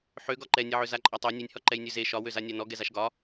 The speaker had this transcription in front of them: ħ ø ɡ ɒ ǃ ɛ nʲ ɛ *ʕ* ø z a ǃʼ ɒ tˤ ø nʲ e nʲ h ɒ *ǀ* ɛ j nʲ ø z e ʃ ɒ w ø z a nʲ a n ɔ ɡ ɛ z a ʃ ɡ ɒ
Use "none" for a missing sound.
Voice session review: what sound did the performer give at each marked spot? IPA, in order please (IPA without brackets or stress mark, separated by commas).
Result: ʕ, ǃ